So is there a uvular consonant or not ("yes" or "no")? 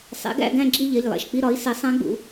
no